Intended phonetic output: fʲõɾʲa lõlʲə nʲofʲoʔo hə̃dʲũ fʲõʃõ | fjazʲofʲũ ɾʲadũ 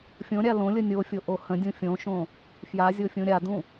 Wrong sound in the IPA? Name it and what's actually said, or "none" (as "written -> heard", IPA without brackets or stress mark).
none